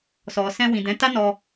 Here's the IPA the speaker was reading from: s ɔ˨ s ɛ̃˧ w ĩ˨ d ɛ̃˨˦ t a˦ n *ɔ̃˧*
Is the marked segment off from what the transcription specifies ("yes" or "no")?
yes